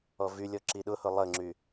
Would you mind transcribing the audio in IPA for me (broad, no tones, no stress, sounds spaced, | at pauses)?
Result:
ɔ v y lʲ ɔ ǁ i ɗ ʊ h ʊ lˠ ə ŋ͡ǁ y